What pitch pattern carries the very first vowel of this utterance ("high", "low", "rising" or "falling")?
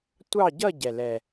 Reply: falling